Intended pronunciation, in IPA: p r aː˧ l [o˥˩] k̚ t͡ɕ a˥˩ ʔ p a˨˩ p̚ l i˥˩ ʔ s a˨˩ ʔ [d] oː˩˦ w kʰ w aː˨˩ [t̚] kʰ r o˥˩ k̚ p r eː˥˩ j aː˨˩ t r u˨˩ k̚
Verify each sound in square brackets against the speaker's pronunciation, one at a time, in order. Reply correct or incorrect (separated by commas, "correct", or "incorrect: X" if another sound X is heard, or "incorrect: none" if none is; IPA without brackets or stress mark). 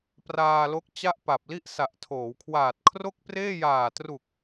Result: incorrect: o˦˥, incorrect: tʰ, correct